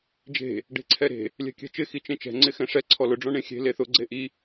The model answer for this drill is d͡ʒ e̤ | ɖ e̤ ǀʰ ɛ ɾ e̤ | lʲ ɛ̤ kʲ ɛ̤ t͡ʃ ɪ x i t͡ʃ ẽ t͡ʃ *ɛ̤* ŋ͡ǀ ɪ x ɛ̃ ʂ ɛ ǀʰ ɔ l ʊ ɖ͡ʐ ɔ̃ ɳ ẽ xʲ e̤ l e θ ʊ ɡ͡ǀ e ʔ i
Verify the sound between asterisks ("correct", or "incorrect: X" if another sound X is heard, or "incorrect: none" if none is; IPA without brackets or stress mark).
correct